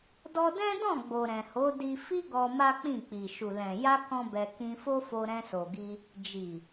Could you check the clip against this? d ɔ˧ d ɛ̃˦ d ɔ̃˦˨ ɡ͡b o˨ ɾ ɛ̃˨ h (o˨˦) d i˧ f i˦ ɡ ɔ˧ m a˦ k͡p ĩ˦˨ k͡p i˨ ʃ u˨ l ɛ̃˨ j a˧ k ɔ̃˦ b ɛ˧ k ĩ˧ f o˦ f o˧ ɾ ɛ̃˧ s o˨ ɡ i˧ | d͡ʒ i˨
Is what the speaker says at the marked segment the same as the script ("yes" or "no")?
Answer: yes